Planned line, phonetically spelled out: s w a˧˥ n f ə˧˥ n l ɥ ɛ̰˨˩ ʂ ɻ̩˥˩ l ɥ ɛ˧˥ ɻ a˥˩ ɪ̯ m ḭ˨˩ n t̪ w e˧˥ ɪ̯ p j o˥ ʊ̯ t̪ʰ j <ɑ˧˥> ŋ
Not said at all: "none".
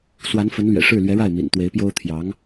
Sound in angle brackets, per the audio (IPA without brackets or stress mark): ɑ˧˥